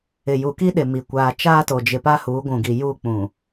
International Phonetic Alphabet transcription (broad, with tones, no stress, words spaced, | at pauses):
ɪ˨ju˨ki˦ɗɪ˨ mi˨ kʷaː˨t͡ʃaː˦to˨d͡ʒɪ˨ pa˦huː˨˦ɡʷũ˨ɡi˨ ju˦˨ k͡pũ˨